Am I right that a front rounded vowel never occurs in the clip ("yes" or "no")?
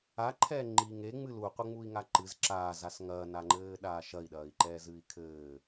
yes